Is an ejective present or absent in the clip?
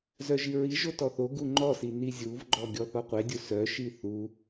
absent